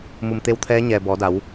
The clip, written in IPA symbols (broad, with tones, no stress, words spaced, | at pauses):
mu˧˩mt̪e˧w t̪ʰɛː˧˥ ɲɛː˩ bɔː˩˧da˩˧w